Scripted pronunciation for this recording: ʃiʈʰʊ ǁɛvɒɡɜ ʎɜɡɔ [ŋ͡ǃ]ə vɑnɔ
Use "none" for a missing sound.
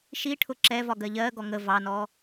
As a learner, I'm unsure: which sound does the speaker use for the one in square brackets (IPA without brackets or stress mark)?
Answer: ŋ